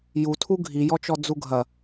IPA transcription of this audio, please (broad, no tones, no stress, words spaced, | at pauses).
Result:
jutʰu ɡʱijɔt͡ʃɔ d͡zuɡʱɐ